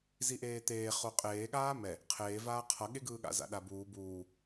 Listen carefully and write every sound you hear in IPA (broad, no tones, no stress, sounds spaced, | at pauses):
z i ʔ eː t̪ eː χ o qʼ eː ɠ aː m ɛ | qʰ eː v aː qʰ ʌ ɠ e ɡ ɯː ɠ a̰ z a̰ ɗ a b uː b uː